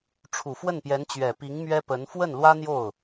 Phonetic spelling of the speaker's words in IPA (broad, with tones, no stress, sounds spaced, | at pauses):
ʈ͡ʂʰ u˨˩ f w ə˥˩ n p j ɛ˧˥ n t͡ɕ ɥ ɛ˨˩ p i˧˥ ŋ m ɥ ɛ˥ p ə˧˥ n f w ə˥˩ n l w ä˥ n̪ j o˥˩ ʊ̯